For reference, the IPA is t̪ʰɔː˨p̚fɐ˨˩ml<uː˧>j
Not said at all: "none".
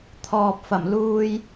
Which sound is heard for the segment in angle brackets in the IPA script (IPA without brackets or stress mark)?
uː˧